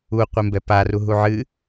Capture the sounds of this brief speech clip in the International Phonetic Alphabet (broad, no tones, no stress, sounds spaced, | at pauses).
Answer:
u qʷ e m b ɛ p a r u ɦ u ʕ ɨ